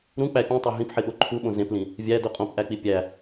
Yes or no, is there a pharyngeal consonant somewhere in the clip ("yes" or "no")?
yes